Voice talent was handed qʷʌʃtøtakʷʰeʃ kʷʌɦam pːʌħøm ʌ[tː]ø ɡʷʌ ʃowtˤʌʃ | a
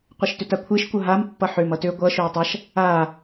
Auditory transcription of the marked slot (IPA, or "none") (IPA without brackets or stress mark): t